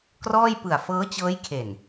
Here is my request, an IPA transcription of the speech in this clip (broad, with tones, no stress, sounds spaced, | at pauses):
k r ɔː˥˩ j p ɯ˨˩ a̯ f ɤː˦˥ t͡ɕ ɤː˦˥ j kʰ e˨˩ n